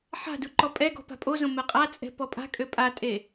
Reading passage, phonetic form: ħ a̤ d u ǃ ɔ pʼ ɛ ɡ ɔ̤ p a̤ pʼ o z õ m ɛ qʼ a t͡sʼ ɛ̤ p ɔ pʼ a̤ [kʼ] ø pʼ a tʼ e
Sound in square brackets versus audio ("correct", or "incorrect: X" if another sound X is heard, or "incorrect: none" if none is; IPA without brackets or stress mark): correct